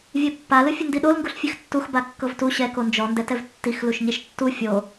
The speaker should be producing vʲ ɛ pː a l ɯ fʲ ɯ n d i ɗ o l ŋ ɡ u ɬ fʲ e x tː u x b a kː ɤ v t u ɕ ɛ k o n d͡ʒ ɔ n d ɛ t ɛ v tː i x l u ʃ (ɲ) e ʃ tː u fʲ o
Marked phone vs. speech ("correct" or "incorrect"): correct